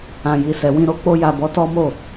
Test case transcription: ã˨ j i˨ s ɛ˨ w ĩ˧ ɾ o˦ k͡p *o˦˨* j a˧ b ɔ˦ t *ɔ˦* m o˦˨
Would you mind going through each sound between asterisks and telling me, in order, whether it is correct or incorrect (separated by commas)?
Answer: incorrect, correct